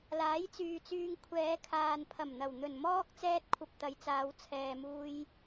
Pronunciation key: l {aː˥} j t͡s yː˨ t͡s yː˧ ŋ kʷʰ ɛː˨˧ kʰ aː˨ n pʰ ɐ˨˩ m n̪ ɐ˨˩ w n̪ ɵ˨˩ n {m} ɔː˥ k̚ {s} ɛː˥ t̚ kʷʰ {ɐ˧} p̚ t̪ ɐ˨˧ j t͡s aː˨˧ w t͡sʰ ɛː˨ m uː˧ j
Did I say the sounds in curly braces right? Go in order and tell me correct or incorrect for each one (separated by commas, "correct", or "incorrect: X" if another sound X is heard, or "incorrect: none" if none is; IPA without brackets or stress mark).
incorrect: aː˨˥, correct, incorrect: t͡s, correct